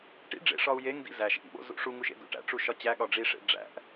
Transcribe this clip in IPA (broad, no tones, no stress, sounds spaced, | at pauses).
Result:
ʈ ḭ ɖ͡ʐ ḛ ʂ ɒ u̯ j e ŋ d ḭ z æ ʃ ʔ ḭ ɓ o̰ z ṵ ʂ u ŋ u ʃ ḛ d ṵ ʈ æ̰ ʈ͡ʂ u ʃ ɒ t͡ɕ æ ɠ ɒ ɖ͡ʐ i ʂ ḛ ɖ͡ʐ æ̰ ʔ